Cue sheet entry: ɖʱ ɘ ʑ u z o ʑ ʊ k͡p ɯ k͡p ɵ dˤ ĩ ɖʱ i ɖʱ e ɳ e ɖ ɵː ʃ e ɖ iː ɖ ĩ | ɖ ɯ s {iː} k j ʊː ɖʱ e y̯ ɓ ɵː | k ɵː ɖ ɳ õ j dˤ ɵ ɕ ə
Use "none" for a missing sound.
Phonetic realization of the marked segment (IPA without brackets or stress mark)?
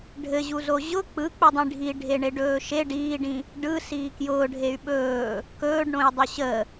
iː